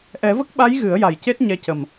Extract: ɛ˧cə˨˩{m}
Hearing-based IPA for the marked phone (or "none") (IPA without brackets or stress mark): m